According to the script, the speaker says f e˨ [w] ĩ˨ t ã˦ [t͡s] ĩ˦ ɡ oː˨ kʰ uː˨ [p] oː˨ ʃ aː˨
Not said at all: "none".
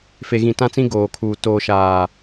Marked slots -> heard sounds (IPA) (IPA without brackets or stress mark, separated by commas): ɣ, t͡s, t